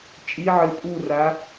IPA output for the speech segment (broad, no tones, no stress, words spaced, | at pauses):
t͡ʃʼiʕɘ pʼura